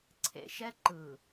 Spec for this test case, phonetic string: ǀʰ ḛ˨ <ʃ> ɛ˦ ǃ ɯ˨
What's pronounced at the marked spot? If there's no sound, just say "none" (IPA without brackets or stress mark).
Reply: ʃ